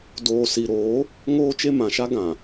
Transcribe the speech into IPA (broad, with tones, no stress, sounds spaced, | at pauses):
d oː˨ s i˨ ɾ oː˨˦ | ŋ oː˦ t͡ʃ e˦ m ã˨ ʃ a˦ ɡ ã˨